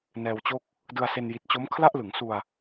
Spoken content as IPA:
nɛː˧wt͡ɕo˥˩k̚ | dɯ˧a̯se˧n ji˨˩t̚t͡ɕo˦˥m kʰla˥˩ʔlɯ˩˦ŋsu˧a̯

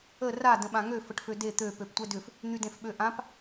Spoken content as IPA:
ə ra də̃ɓãŋø fəʈføde t̪ø pøptʷɛdʏf | n̪ydẽfɓøʔãp

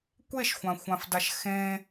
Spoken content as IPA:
kʷeʃxʷãxʷãfdaʃ xẽ

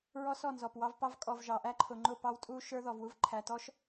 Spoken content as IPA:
ɹɔ˦sɔ˦˨ nzɔ˨pwɑ˦vpɑ˦v kʼɔ˨vʒɑ˨ʔæ˦ ǃʰʊ˨ŋ͡ǃʊ˦˨ pɑ˦wtʼu˦ ʃə˞˦ ðɔ˨vwu˦v ǃʰæ˨tɔ˦ʃ

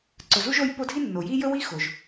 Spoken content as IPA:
ǀɵ˨zu˥ʒo˦j po˦dʱi˥nːo˩ ji˥jɵ˥ wi˥xo˩ʒ

